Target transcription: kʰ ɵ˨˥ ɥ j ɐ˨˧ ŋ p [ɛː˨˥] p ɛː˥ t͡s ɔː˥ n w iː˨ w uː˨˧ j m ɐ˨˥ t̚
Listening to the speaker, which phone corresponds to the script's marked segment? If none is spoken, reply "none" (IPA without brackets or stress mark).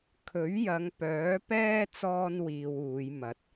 œː˨˥